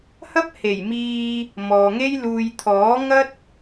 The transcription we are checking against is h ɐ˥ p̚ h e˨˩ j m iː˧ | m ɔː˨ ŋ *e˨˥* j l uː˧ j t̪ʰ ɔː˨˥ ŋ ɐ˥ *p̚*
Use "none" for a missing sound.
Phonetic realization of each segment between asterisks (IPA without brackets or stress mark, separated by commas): e˥, t̚